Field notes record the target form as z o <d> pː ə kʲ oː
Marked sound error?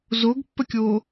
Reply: yes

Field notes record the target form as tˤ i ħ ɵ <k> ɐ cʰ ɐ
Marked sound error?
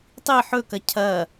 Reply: no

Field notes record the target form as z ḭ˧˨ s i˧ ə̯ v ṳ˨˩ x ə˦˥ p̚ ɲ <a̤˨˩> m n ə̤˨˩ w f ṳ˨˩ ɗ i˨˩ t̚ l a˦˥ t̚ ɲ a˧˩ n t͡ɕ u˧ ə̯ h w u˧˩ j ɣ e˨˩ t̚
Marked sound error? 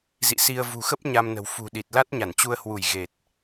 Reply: yes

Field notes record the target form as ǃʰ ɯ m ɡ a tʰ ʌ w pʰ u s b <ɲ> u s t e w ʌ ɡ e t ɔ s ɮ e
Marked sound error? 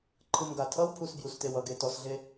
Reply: yes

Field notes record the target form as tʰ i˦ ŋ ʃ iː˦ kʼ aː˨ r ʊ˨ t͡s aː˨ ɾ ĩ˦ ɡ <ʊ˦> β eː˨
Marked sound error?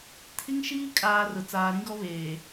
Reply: yes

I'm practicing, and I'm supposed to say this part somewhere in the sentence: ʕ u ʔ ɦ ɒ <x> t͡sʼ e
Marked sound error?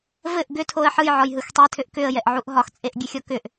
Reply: no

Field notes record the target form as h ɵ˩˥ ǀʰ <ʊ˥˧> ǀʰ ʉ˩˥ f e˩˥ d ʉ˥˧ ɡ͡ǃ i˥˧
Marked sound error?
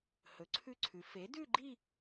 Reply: yes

